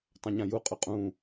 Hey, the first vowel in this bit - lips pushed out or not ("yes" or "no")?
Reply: no